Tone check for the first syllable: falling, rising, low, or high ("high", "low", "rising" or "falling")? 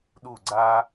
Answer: falling